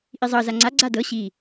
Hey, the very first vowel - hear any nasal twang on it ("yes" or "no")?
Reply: no